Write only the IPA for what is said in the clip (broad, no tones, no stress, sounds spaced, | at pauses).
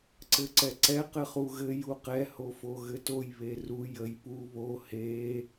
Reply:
ǀ ɘ ǀ ɛ ǀ ɛ q ɘ χ u ɣ ɘ j u q ɛ h o f o ɣ ɘ t o j β e r u j ə j p u β o h e